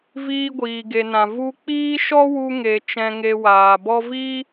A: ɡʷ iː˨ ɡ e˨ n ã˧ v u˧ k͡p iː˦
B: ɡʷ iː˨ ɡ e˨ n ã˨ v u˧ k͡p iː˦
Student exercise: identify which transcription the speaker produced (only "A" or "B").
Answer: B